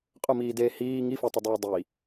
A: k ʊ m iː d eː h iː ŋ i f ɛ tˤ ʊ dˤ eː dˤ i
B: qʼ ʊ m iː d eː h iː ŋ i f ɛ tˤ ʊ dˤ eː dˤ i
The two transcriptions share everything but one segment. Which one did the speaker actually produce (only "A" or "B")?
B